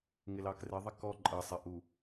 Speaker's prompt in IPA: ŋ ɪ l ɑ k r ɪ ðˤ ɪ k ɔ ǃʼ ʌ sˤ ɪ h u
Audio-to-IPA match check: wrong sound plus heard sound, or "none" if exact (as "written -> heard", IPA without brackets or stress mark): h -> ʔ